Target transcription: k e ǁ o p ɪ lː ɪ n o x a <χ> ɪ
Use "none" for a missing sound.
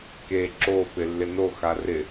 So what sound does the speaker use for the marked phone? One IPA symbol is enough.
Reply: r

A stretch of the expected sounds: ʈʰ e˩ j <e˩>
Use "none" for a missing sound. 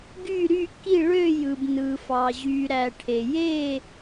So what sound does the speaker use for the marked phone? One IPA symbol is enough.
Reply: e˥˨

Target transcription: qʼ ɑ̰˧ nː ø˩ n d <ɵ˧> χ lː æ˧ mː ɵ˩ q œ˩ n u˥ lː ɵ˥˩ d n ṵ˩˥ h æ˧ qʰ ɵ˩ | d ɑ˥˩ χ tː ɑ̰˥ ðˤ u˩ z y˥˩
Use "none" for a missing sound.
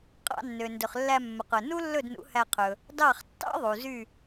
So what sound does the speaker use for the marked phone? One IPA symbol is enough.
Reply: ɵ˩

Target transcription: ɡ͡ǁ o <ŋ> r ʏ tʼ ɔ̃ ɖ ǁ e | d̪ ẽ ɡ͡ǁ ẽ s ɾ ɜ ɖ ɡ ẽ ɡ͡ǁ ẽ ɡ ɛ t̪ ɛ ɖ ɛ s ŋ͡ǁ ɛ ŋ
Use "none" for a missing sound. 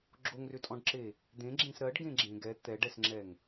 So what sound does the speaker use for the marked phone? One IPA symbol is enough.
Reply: ŋ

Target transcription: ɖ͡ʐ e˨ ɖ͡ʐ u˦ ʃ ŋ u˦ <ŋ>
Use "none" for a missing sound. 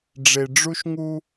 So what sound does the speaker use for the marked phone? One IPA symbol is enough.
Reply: none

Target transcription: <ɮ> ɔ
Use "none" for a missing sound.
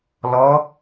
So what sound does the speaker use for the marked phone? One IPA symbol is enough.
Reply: l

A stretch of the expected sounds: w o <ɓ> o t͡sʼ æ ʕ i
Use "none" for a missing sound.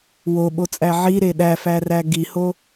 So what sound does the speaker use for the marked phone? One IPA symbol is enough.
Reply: ɓ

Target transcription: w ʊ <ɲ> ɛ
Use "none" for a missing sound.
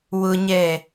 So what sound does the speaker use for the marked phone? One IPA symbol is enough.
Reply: ɲ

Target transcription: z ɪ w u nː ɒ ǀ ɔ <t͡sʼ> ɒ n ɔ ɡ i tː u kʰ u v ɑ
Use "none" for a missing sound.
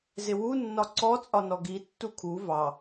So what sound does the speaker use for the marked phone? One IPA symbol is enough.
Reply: t͡sʼ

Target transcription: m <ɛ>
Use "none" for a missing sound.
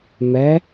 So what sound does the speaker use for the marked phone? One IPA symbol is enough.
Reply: ɛ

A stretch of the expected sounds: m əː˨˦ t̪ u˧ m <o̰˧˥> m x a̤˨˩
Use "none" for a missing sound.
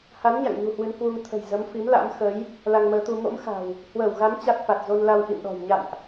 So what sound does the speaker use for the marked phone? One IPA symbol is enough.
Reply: o̰˧˥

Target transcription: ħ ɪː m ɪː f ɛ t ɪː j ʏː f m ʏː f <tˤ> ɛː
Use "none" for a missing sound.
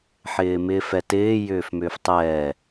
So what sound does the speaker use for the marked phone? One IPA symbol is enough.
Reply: tˤ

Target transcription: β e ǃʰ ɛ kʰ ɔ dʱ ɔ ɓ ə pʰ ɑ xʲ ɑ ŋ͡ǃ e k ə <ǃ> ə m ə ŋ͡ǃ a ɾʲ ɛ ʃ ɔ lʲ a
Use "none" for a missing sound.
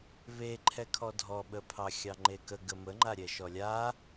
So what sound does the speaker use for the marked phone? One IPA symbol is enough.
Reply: ɡ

